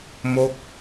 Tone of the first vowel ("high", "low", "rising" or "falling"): falling